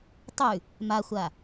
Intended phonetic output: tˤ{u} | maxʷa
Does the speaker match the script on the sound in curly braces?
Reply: no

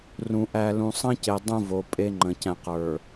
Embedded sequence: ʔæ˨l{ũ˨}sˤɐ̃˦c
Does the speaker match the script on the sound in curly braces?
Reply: yes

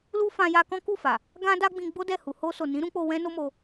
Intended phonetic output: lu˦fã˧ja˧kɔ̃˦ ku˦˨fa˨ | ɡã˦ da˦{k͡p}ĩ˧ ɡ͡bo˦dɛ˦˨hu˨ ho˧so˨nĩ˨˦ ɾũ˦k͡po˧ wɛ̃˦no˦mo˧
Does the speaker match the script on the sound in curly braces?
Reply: no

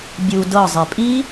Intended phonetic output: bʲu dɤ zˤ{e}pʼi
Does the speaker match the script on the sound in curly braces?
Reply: yes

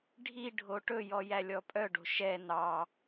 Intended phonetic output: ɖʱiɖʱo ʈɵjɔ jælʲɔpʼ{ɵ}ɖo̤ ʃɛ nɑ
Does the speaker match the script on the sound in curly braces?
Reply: no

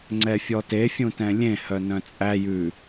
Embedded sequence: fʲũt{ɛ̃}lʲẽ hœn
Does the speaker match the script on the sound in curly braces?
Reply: yes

